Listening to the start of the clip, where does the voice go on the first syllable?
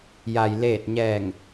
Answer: low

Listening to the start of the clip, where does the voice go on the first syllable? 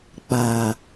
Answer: low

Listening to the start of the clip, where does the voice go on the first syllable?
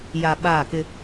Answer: low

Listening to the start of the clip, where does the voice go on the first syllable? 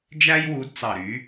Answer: high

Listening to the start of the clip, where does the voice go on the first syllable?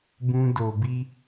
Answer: high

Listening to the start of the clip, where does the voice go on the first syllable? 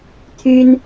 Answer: high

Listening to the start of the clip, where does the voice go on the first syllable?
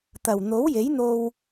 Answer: low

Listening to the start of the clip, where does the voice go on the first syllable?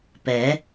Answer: rising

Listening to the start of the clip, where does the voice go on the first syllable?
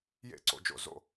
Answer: falling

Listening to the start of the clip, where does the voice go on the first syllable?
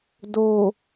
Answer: low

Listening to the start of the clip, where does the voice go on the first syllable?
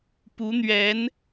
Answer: rising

